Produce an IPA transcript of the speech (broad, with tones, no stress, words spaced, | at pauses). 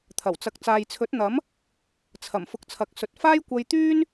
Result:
t̪ʰɐ˨˩wt͡sɐ˨k̚ t͡saː˨jt͡sʰɵ˨˥t̚n̪ɐ˨˥m | t͡sʰɐ˨˩m fʊ˧k̚t͡sʰɐ˨k̚sɵ˨t̚ faː˥jkʷɐ˧jt̪yː˥n